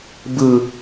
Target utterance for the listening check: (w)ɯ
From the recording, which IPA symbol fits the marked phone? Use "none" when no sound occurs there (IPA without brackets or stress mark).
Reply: b